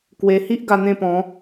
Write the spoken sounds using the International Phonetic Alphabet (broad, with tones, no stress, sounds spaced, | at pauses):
k w e˧ h i˦ ʔ ɡ a˧ n̪ ẽ˥˧ p ɔ̃˨˦